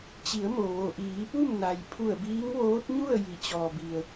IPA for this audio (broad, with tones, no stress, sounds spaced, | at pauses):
t͡ɕ i˩˧ ə̯ m o˩ ʋ o˩ ʔ iː˩˧ p u˥˨ m n a˩ j pʰ u˧˩ ə̯ b iː˧˥ ŋ ʋ oː˧˥ t̚ ɲ u˥˨ ə̯ j i˩˧ t͡ɕ ɔː˩ b i˩ ə̯